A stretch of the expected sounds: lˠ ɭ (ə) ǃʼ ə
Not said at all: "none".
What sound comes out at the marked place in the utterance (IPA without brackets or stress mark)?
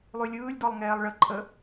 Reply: ə